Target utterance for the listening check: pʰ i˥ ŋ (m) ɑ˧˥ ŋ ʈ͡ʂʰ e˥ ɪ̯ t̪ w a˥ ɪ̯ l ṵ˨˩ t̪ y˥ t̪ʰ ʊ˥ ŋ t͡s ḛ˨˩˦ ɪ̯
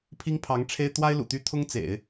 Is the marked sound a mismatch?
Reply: yes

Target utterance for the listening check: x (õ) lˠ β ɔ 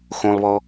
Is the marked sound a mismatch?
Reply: no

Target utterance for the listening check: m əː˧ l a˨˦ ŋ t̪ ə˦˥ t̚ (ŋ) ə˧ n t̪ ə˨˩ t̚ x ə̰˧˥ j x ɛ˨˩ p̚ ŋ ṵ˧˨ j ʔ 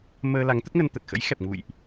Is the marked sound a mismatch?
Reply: no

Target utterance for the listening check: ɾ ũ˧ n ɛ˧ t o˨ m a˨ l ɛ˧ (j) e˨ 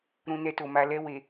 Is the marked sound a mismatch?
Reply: yes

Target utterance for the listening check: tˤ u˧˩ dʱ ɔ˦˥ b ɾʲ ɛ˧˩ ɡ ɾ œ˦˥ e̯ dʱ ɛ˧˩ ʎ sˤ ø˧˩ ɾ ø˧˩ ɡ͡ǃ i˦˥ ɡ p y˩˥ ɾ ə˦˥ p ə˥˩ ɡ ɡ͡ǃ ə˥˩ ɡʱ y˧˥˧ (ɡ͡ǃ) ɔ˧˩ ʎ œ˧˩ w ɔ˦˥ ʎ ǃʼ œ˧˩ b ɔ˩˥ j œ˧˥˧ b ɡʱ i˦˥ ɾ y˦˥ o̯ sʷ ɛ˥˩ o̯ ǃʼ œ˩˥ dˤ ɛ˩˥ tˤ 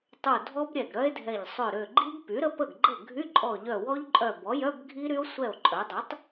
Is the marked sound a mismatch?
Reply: yes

